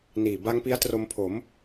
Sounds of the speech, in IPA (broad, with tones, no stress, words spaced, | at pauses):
niː˨˩ba˦˥ŋ pi˦˥a̯ tro˧mpʰo˩˦m